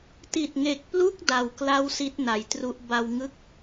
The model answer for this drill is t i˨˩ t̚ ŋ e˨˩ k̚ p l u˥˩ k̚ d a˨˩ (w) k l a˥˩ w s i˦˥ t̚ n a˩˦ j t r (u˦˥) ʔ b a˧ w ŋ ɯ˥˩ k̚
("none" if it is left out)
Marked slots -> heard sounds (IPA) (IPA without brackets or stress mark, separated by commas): w, u˦˥